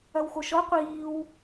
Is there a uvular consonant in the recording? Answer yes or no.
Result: yes